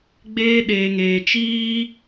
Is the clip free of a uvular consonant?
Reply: yes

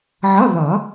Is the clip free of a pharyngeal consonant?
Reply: no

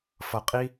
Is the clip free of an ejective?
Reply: no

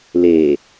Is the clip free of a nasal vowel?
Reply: yes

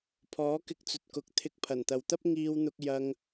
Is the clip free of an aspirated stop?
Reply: no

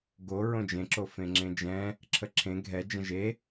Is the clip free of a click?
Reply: no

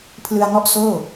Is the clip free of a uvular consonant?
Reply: yes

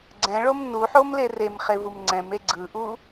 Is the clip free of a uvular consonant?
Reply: no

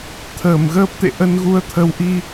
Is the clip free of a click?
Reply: yes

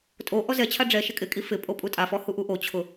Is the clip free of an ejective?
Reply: no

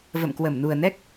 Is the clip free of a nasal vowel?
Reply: yes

